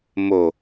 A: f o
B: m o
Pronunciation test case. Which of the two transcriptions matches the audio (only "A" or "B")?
B